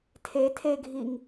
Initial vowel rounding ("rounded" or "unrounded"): unrounded